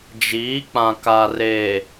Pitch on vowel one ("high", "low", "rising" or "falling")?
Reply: rising